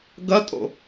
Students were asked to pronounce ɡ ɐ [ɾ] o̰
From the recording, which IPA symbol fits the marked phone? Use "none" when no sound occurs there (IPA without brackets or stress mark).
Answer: tʼ